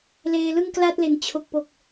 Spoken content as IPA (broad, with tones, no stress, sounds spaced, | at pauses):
l eː˧ l ɯ˥˩ ŋ k l a˥˩ t̚ l e˨˩ n t͡ɕʰ o˨˩ k̚ p o˨˩ k̚